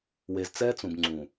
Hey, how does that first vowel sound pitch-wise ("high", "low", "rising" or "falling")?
low